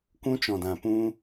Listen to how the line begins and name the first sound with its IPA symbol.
kʷ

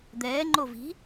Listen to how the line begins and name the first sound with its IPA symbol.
d̪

